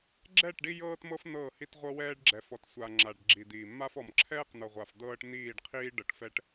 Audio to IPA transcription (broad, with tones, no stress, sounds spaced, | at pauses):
ɡ͡ǁ ɛ˦˨ ʈ ɖ i˦ j ɤː˦ t m ɤ˦ f n̪ ɤː˦˨ h i˦ t ʁʷ ɤ˦ w ɛː˦ ɖ ɡ͡ǁ ɛ˨ f ɔ˨ t sʷ a˨ ŋ͡ǁ a˨ ɖ ɡ͡ǁ i˨ d̪ iː˨ mː a˦ f ɔ˨ m ǁʰ ɛː˦ q n̪ ɤ˨ ʁʷ a˨ f d̪ ɤː˦ ʈ n̪ iː˦˨ ɖ qʰ iː˦ ɖ ɤ˨ ʈ f ɛ˨ ʈ